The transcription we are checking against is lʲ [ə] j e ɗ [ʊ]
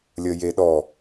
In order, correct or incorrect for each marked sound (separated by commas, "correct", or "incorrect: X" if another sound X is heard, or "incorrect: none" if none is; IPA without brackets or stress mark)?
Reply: correct, incorrect: ɔ